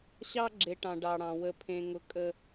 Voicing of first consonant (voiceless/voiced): voiceless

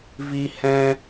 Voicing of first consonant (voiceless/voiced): voiced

